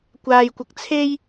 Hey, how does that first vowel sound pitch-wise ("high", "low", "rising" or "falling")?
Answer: low